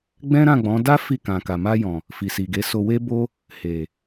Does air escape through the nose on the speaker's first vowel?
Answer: yes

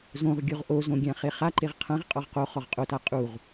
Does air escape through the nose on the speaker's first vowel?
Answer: yes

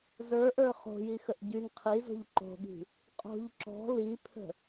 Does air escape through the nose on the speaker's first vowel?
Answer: no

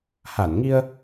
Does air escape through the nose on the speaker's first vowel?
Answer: no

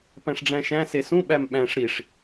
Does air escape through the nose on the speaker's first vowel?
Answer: yes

